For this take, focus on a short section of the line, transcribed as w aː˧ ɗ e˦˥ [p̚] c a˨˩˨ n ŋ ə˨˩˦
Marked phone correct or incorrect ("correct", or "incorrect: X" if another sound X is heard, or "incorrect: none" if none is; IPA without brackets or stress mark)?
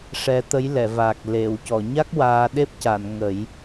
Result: correct